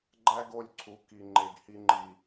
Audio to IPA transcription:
ɡ͡ǃ æ˦ ɡ o˦˨ lʲ ǀʰ u˨˦ k i˨ ŋ͡ǃ e˨ ɡ h i˦ ŋ͡ǃ i˨

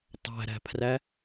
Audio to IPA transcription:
tˤ æ̤ ɾ æ̤ pʰ r æ

